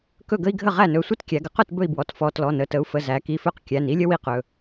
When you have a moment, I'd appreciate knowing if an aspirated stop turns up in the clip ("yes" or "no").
no